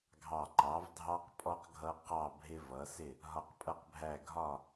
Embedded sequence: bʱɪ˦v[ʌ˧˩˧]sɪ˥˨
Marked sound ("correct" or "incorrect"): incorrect